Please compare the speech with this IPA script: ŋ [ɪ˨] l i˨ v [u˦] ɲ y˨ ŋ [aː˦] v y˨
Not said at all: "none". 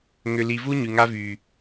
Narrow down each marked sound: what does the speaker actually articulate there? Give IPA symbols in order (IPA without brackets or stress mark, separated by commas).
ʏ˨, u˦, a˦